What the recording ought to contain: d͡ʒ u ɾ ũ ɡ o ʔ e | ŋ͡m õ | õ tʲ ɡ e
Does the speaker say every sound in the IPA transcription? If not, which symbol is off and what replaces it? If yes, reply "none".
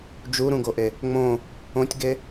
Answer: none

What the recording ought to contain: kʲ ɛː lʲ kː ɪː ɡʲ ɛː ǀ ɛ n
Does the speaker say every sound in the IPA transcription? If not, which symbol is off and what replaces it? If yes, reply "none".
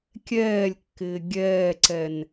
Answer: none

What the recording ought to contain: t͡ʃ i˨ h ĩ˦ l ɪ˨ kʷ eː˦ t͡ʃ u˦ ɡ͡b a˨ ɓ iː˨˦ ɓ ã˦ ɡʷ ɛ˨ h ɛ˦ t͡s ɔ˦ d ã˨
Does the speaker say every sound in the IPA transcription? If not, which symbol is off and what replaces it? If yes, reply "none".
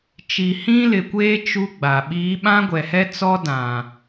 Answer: none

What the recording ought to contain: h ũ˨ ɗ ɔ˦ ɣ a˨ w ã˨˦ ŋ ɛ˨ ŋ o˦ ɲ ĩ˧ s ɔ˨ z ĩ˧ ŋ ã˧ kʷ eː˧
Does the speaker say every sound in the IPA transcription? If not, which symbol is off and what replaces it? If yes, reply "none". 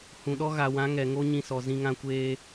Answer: none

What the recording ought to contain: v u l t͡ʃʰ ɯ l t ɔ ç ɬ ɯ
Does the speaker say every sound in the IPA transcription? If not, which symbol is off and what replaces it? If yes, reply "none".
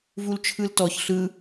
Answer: none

